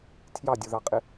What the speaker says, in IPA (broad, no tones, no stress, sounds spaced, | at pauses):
tʰ j ɑ dʲ u ð ɑ qʼ ɪ